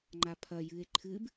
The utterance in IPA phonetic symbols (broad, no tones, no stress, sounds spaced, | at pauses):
ŋ͡ǃ a pʰ ɐ j ɨ e̯ ǃʰ ɨ b